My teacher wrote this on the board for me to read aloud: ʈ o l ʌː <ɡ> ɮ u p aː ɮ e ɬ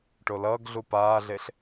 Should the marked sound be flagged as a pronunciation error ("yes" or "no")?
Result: no